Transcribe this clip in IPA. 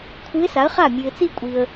kʷʰ ɨ˧˥ ɪ̯ s a˩˥ ə̯ χ a˥˩ mʲ ʉ˨ ɪ̯ t͡s i˥˧ kʷʼ i˨ ə̯

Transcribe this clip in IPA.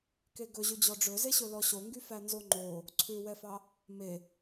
k e ɡ ɵ ʑ ʉ d͡ʑ ɔ ɖ͡ʐ ɵ z e ɕ ɵ l ɔ ɕ o ŋ ɡ y f æ n z o ŋ͡ǃ o | ǀʰ ʉ w ɛ f ɑ | m e

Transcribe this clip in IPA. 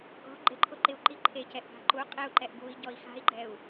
ɡ ɔ̤ ɡ͡ǃ ɪ ǃʰ ʊ ǃ ɪ u̯ ǃ i ǃʰ e c ɛ ʔ ɡ a̤ ǃ u qʼ e u̯ ǃ ɛ ʔ ɡ u i̯ ɟ ɔ i̯ x a̤ i̯ ɡ͡ǃ ɛ u̯

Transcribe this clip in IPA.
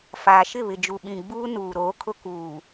f aː˨ ʃ ɪ˦˨ β ɪ˨ d͡ʒ u˨ ɓ ĩ˨ ɡ͡b uː˦ n uː˨ ɾ oː˨˦ kʰ ʊ˦ k uː˨

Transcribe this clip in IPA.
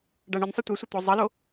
ɖ a ɳ ɨ nʲ sˤ ɨ tʷ e sʷ ɘ t̪ o zˤ ɐ l o

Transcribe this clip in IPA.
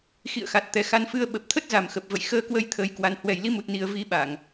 x ḭ˧˨ ə̯ x a˨˩ t̚ t̪ ɛ˨˩ x a˧ n f ɨ˧ ə̯ ɓ ə˨˩ p̚ t̪ʰ ə˦˥ t̚ z a˨˩ m x ə˨˩ p̚ v ə̰˧˨ j x əː˧ k w ə˧ j t̪ʰ əː˧ j k w a˧ n h w ɛ˨˩ j l i˨˦ m u˨˩ t̚ n i˨˩ ə̯ v i˨˦ ɓ a˧˩˨ ŋ

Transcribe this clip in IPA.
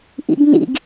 ʔ ḭ ɡ n ḭ ɡ

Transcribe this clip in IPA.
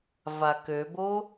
v a k ø b o

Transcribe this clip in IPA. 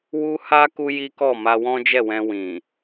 w u˦ h a˦ k u˦ j i˦ k ɔ˦˨ m a˧ w ɔ̃˦ d͡ʒ ɛ˦˨ w ɛ̃˧ w ĩ˨

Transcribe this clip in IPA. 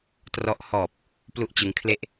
t r ɔ˦˥ ʔ h ɔː˨˩ p̚ | p l u˥˩ ʔ t͡ɕ ɯ˦˥ ŋ kʰ l e˥˩ ʔ

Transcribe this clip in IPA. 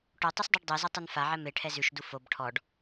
ʈ o tˤ u s dˤ ʉ ɖ dˤ ɛ z ɛ tˤ u n f a ʕ ɛ m e ʈʰ ɛ z ʉ ʃ d u f o b ʈʰ ɔ ɖ

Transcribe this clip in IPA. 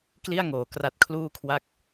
k l i˥˩ a̯ ŋ oː˩˦ k r a˦˥ t̚ kʰ l uː˥˩ kʰ w a˥˩ k̚

